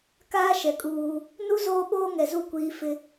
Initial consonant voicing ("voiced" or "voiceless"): voiceless